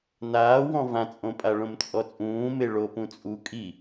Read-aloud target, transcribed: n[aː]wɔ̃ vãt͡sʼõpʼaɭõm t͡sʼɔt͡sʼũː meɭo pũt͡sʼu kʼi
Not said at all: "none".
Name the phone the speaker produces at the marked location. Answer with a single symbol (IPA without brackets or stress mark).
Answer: aː